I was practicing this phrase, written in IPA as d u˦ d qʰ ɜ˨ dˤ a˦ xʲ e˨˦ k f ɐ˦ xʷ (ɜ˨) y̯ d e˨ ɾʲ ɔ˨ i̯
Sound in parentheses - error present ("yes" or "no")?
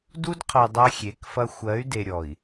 yes